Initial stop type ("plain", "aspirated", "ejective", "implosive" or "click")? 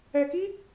plain